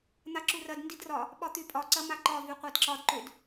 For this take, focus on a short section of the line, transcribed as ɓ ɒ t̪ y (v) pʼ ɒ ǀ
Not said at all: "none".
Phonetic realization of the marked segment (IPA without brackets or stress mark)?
none